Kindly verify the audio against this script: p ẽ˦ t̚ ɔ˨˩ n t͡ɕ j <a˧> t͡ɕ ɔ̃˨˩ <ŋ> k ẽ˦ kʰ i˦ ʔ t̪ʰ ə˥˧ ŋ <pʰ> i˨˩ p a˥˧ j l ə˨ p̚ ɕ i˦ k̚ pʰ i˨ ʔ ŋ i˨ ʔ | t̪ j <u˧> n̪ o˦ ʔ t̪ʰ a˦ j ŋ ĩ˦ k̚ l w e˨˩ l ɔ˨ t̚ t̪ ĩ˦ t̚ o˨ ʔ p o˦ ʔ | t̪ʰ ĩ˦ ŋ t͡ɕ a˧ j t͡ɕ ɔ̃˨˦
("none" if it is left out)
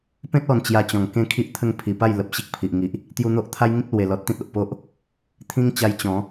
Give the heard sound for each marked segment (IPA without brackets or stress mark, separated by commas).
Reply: a˧, ŋ, pʰ, u˧